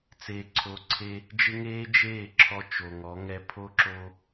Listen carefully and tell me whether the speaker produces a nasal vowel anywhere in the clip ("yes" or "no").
no